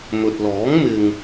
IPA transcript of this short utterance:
m ɵ˨ t̚ l ɔː˨˥ ŋ m ɪ˧ ŋ

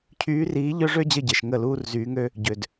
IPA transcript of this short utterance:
cʰ yː˧˥ r iː˧˥ ʎ œ˥ ʐ ø˥ d͡ʑ ə˥˨ ɟ e˨ ʃ ŋ ə˥˨ l uː˥ r z yː˧˥ ŋ ø˥ | ɟ ø˨ d

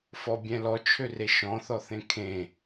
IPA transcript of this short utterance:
f ɔ bʲ ɛ̃ l ɔ t͡ʃʰ ø r e ʃ ɔ̃ θ ɔ θ ẽ kʰ ẽ

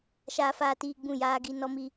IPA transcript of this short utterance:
ʃ aː˦ f aː˦ t iː˦ ɡ͡b ũ˦˨ j aː˦ ɡ i˦ n ɔ˦ m i˦

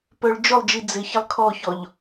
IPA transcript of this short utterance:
p œ ɭ d͡ʒ ʊ lˠ d͡ʒ i d͡z ɪ ç ɪ lˠ kʰ ɔ ç ɔ ʎ

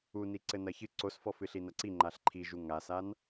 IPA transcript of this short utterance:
u n i ǀ ɘ n ɐ ç ɨ ǀ o s f ɔ f ɨ ɬ i n ɐ ǀ i ŋ͡ǃ a ɬ ǃʰ i ʒ u ŋ a s a n

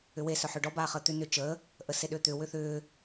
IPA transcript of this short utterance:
ʏ w e s œ ħ ʏː ɖ ɔ b aː χ əː t̪ ʏ n ʏ t͡ʃ əː | ʔ ə s e ɗ ʏː t̪ ʏ w ʏ θ ʏː

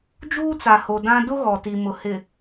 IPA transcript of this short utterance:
d͡ʒ uː˦ t͡s a˨ h o˨ d ã˦ d ʊ˦ ɣ ɔ˨ t i˨ m ʊ˨ h ɪ˨

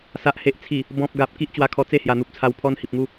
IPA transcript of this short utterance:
s a˨ ʔ h e˨ ʔ t͡sʰ i˨˩ | b ɔ̃˨ p̚ ɡ a˨ p̚ k i˦ ʔ t͡ɕ w a˧ kʰ ɔ˧ t͡s e˥˧ h j a˨˩ n̪ u˨ p̚ t͡sʰ a˧ w pʰ ɔ˦ n h i˨ p̚ ŋ u˥˧

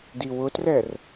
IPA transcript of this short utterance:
d i w ʊ t r ɛ r

